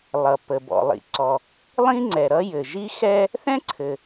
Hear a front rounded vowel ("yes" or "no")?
no